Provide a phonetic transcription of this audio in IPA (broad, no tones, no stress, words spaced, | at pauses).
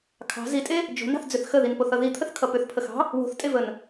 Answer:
kʰɑ̤ zitʼe | d͡ʒo̤nɑ̤θd͡zʏθ xəðinpoθʌ ðit̪ʰəθkʰʌ pʏθpʰəxɑ̤ | wo̤θtʼevən